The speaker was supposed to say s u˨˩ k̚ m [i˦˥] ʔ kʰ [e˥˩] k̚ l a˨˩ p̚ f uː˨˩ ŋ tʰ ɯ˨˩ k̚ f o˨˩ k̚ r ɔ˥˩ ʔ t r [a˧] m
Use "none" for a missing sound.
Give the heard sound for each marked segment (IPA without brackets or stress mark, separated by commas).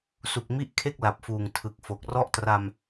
i˦˥, e˥˩, a˧